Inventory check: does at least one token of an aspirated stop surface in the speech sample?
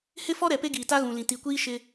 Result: no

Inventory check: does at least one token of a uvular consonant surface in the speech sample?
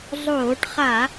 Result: yes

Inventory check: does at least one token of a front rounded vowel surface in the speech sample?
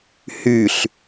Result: yes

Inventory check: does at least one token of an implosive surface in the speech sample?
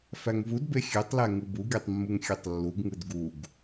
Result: no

